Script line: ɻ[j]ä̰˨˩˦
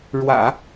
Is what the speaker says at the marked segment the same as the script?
no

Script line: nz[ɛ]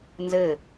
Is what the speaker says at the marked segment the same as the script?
no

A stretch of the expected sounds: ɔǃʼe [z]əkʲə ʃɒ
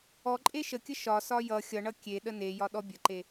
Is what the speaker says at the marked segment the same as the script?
no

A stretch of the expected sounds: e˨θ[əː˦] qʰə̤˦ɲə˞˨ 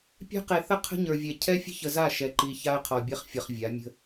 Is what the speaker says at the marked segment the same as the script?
no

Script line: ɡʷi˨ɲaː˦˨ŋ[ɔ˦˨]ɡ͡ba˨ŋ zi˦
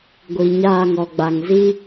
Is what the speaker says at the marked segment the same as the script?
no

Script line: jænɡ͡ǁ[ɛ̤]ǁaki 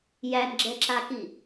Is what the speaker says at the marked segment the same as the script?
no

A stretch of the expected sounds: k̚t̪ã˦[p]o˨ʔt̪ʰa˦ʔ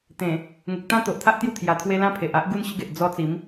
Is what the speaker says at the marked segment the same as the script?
no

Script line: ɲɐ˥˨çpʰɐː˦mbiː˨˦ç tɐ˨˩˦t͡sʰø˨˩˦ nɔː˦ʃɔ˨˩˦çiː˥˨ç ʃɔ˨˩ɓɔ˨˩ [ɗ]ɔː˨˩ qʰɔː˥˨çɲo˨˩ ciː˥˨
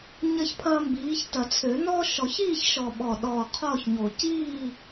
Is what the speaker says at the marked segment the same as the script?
yes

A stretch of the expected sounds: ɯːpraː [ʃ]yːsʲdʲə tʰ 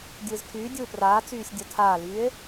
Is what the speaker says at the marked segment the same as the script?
no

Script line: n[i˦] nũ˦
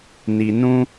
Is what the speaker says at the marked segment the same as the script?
no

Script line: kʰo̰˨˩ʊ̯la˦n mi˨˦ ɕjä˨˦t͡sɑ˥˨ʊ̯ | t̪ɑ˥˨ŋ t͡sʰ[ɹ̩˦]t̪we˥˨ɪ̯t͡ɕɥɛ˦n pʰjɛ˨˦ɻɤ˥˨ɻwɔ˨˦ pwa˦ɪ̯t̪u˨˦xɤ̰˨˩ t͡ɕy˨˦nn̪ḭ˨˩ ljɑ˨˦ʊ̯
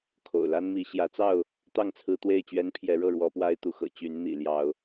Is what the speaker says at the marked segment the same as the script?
yes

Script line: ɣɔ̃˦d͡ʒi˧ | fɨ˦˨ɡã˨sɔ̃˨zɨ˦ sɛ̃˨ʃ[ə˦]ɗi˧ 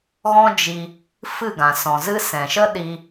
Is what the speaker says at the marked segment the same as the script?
yes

